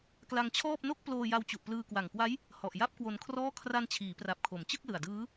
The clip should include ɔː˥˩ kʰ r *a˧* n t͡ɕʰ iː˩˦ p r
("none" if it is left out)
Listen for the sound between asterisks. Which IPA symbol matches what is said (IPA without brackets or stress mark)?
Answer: a˧